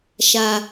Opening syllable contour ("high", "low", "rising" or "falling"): low